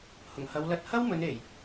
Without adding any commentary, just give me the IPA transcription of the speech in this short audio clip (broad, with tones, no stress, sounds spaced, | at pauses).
h ʊ˨˩ ŋ h ɐ˨˧ w l ɐ˧ t̚ h ɐ˥ w m ɵ˨˧ n e˨˩ j